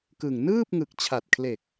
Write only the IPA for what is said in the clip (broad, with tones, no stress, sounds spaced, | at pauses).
k ɯ˨˩ ŋ n ɯː˥˩ p̚ ŋ ɯ˨˩ k̚ t͡ɕʰ a˨˩ t̚ kʰ l e˨˩ k̚